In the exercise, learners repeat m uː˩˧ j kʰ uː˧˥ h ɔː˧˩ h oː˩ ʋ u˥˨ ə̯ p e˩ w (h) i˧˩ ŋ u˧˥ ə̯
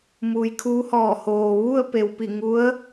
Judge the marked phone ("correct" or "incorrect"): incorrect